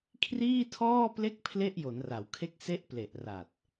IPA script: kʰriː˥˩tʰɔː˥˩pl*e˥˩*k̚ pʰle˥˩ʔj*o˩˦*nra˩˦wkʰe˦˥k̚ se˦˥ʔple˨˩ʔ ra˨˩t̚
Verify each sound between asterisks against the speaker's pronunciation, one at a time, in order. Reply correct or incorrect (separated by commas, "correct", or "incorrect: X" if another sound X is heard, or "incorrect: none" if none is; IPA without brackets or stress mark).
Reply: correct, correct